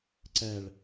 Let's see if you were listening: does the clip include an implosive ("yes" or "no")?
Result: no